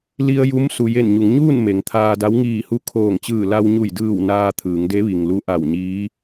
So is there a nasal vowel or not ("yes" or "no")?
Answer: no